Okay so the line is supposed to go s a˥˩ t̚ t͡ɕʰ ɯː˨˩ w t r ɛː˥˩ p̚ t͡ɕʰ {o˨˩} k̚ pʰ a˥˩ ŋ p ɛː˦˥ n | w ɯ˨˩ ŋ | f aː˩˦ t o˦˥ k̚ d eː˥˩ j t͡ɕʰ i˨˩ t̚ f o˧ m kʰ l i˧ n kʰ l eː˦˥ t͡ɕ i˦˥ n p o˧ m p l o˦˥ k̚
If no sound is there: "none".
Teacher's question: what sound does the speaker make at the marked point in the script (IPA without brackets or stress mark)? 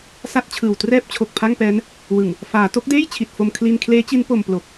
o˨˩